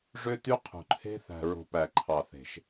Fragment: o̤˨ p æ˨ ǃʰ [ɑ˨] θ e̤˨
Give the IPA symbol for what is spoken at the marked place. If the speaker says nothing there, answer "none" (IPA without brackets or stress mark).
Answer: ɑ˨